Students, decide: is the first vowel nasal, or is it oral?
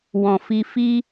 nasal